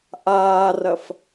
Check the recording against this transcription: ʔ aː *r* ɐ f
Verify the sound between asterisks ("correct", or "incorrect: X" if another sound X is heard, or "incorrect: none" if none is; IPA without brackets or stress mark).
correct